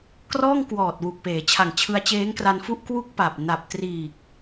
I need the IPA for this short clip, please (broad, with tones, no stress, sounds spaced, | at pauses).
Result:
k r ɔː˥˩ ŋ k w ɔː˨˩ t̚ w u˨˩ k̚ p eː˩˦ t͡ɕʰ a˨˩ ŋ t͡ɕʰ ɯ˧ a̯ t͡ɕ eː˦˥ ŋ k r a˧ n f u˥˩ ʔ k w u˥˩ k̚ p a˨˩ p̚ n a˨˩ p̚ t r iː˨˩ k̚